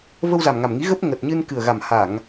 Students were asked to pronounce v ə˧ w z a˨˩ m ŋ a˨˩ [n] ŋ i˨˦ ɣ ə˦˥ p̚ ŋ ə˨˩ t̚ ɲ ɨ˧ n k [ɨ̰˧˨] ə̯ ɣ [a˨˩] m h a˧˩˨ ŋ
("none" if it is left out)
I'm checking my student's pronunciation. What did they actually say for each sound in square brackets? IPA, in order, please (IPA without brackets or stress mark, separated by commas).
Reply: m, ɨ˨˩, a˨˩